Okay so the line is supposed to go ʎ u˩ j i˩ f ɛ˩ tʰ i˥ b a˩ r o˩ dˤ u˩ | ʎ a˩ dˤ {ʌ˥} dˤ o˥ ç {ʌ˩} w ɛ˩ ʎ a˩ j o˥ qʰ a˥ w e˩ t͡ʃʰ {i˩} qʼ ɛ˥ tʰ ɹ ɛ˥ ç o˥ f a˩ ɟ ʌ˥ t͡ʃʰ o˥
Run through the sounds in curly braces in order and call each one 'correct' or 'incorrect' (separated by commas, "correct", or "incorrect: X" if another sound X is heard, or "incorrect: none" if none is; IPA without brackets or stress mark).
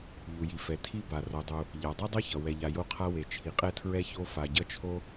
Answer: correct, correct, correct